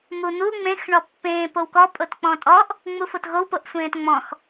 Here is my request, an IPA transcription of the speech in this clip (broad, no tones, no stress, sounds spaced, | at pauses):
m u n̪ u ŋ͡m ẽ x ɳ ɔ pː ẽː p o w k ɔ pʼ o t k͡p ɔ̃ tʼ ɔ ʔ | ŋ͡m u f o t ɣ o w p o ʔ sʷ ẽː t ŋ͡m ɔ̃ x